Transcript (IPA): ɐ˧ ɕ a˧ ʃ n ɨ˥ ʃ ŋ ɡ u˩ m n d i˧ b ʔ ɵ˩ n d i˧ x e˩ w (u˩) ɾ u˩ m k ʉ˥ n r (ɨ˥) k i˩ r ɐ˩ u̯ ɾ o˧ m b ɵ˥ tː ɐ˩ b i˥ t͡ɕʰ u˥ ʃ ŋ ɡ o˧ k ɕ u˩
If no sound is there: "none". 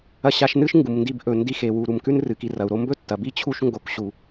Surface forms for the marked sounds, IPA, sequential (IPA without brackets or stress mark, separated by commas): u˩, ɨ˩